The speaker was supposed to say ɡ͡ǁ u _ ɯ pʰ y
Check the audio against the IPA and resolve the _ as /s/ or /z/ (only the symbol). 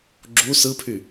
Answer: s